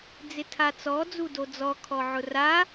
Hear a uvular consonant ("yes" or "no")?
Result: no